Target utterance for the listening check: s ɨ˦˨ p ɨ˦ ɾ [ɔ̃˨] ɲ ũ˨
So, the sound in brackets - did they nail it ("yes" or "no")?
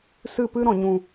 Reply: yes